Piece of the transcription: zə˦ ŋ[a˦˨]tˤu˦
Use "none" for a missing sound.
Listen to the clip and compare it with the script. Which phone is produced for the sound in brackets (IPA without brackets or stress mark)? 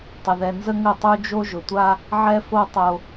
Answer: ə˦˨